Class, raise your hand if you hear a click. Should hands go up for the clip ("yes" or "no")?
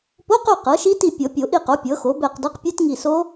no